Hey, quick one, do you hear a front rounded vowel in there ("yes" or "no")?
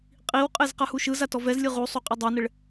no